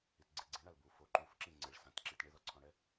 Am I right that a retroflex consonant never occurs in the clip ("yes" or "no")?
no